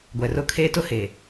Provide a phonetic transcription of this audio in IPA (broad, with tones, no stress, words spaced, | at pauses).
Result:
ɡʷɛ˨rʊ˦ kʰeː˦tʊ˦ he˨